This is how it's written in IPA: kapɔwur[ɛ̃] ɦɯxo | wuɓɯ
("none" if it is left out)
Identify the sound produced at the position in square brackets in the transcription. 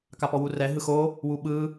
ɛ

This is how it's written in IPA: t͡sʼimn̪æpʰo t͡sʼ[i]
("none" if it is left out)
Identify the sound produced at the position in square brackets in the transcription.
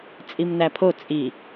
i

